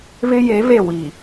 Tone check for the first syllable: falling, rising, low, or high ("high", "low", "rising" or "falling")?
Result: high